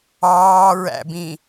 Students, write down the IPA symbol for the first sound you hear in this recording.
ɑː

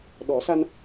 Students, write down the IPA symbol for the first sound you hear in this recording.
ɗ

